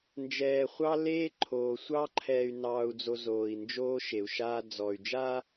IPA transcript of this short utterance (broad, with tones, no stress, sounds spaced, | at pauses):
n d͡ʒ ɛː˨ χʷ ɑ˦ l eː˦ ǃʰ oː˨ sʷ ɑ˦ ǃʰ ɛː˨ y̯ n ɑː˨ u̯ d͡z o˨ z oː˨ i̯ n d͡ʒ oː˦ ʃ e˨ u̯ ʃ aː˦ d͡z ɔ˨ y̯ d͡ʒ aː˦